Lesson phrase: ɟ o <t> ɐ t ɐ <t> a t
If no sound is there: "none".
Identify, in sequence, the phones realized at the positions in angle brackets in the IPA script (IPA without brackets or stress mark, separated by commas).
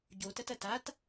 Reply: t, t